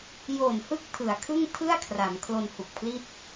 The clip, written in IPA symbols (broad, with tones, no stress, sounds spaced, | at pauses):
j o˨˩ n h ɯ˦˥ k̚ tʰ ɯ˩˦ a̯ kʰ ɯ˥˩ ŋ tʰ ɯ˥˩ a̯ kʰ r a˩˦ m kʰ l o˧ n h u˨˩ k̚ pʰ l i˥˩ t̚